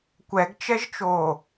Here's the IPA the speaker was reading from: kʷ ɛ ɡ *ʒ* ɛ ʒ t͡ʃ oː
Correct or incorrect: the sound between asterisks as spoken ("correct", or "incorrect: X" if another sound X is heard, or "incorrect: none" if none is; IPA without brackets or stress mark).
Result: incorrect: t͡ʃ